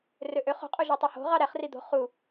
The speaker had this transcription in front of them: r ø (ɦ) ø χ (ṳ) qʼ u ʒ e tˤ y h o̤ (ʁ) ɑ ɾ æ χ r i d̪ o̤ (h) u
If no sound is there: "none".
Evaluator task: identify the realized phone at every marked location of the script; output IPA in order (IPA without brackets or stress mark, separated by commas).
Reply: ʔ, o̤, ʁ, χ